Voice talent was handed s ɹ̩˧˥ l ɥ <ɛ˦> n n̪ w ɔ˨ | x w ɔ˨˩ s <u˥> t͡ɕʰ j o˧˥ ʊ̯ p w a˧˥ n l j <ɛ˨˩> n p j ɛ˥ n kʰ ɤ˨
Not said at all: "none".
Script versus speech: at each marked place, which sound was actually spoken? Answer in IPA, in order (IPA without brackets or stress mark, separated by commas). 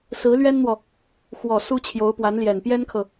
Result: ɛ˥, u˥, ɛ˨˩